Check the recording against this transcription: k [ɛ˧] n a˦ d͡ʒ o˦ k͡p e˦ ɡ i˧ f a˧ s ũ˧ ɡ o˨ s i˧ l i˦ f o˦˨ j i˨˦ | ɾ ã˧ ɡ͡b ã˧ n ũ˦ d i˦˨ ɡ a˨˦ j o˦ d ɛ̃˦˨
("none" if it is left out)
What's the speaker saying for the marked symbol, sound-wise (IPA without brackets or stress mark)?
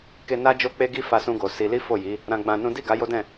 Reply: e˧